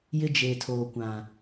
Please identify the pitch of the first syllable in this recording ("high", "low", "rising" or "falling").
high